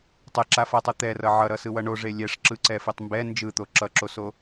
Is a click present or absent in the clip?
present